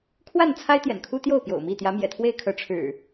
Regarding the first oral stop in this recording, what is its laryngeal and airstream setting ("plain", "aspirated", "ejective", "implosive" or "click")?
aspirated